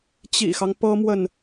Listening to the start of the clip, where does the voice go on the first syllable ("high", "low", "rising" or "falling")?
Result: low